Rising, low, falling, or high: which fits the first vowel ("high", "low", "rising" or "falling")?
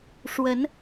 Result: rising